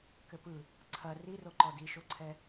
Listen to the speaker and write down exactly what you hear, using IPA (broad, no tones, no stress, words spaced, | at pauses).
kɘpɯ | ǀʰɐ riroǃɔ diʃoǀʰɛ